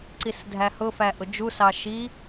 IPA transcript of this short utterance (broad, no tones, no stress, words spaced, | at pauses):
ǀisdʱæhʊfæ ʔʊd͡ʒusɑ ʃi